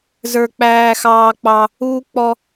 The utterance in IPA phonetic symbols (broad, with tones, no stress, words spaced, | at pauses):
zə˞˥k͡pæː˥xɑː˥k͡pɑ˥ | uː˥ k͡pɔ˥